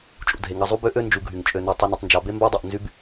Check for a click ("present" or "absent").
absent